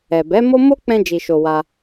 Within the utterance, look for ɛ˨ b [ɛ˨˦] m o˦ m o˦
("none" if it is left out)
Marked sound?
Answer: ɛ˨˦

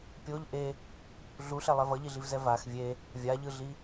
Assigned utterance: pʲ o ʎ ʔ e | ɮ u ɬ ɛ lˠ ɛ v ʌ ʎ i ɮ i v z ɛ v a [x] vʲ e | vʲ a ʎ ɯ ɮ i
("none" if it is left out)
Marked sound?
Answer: x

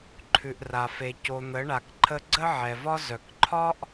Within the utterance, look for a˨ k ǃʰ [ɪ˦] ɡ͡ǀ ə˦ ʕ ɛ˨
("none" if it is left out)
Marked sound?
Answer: ə˦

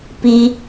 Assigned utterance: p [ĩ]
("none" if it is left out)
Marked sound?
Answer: i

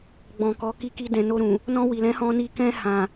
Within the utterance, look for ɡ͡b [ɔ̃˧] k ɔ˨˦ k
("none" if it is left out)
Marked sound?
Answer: ɔ̃˨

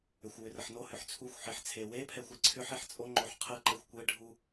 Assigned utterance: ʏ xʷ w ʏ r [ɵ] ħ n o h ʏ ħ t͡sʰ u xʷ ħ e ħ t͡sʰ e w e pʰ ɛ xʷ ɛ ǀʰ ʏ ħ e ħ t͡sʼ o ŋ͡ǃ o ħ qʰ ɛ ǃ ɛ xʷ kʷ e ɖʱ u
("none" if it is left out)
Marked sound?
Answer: ə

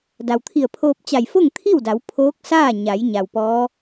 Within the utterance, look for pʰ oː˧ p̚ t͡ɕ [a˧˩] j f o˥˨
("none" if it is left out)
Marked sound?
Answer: a˧˩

